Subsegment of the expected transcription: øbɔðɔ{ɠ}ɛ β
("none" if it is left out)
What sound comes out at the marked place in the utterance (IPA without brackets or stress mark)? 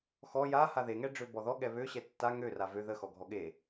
ɠ